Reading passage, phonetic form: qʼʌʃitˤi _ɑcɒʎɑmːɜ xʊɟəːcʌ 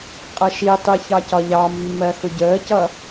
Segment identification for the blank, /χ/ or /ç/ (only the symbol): ç